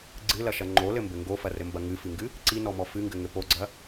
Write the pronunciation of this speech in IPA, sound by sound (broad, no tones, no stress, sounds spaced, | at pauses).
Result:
ɡ͡ǀ ɨ l ɐ ʃ ɐ ŋ͡ǃ o l ɘ m b ɘ ŋ ɡ o f ɐ r ɘ m b ɐ ŋ ɨ f ɨ ŋ ɡ ɨ | ǀ i n ɔ m ɔ f ɨ ŋ ɡ ɘ ŋ ɘ p o ɡ͡ǀ ɐ